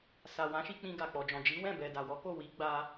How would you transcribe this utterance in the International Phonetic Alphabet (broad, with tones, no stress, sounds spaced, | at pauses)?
s a˨ w ã˨˦ ʃ i˧ k͡p ĩ˧ ɡ a˨ k͡p ɔ˨ d͡ʒ ɔ̃˨ d͡ʒ i˨˦ w ɛ̃˦˨ b ɛ˨ d a˨ w ɔ˨˦ k o˦˨ w i˨˦ ɡ͡b a˧